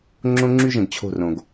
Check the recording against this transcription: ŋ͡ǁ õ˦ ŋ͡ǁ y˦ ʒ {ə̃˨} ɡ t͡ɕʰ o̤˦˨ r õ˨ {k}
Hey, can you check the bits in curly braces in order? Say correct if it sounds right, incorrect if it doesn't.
correct, incorrect

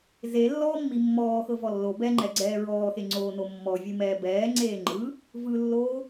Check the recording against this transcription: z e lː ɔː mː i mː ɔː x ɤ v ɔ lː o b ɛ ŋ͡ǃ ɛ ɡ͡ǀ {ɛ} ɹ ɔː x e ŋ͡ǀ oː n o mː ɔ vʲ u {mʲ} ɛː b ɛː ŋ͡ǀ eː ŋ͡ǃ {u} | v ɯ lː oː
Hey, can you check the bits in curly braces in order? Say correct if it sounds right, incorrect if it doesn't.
incorrect, incorrect, incorrect

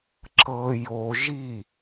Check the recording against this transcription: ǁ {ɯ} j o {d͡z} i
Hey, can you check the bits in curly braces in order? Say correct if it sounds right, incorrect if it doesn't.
incorrect, incorrect

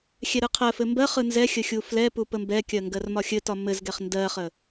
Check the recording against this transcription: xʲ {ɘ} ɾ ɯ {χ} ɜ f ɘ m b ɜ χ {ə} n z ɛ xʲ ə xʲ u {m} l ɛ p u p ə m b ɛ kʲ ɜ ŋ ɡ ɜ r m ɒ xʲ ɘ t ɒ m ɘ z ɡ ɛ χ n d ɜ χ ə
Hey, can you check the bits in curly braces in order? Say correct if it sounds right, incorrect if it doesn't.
incorrect, incorrect, incorrect, incorrect

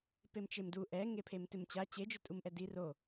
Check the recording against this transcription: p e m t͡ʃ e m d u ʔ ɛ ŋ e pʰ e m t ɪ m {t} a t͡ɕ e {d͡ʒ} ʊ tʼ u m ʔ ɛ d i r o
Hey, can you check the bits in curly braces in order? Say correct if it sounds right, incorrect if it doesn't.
incorrect, correct

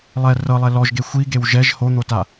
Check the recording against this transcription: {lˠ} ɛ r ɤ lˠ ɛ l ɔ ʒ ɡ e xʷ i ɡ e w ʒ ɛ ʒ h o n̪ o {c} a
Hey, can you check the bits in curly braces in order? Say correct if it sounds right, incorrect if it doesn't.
correct, incorrect

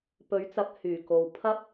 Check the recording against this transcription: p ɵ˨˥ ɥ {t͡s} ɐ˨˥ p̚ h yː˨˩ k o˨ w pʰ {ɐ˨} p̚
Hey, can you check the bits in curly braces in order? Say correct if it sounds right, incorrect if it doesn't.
correct, incorrect

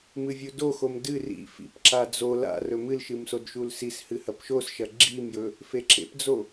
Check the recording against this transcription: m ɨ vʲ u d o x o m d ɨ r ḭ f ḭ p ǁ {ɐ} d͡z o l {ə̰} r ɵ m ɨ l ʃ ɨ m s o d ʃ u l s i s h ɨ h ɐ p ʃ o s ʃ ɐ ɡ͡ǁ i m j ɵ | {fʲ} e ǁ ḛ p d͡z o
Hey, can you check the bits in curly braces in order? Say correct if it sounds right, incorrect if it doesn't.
incorrect, incorrect, incorrect

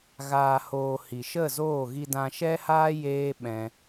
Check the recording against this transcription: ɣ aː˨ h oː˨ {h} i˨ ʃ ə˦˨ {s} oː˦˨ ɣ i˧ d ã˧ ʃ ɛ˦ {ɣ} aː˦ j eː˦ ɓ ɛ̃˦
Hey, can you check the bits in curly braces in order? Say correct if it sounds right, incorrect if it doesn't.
correct, incorrect, incorrect

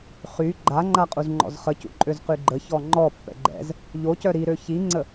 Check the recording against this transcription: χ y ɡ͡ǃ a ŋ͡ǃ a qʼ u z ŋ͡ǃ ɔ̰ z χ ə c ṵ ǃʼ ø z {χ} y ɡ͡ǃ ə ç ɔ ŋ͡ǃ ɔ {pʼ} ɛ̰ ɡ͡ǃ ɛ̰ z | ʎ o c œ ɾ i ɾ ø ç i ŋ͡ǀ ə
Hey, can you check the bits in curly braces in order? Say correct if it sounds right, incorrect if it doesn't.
incorrect, incorrect

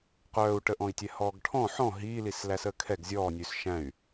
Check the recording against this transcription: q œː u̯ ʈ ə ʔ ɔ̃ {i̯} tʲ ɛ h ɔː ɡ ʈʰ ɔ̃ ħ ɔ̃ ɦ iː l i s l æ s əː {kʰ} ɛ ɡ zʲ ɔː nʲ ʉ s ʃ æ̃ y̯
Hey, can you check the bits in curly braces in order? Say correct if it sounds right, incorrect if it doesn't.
correct, correct

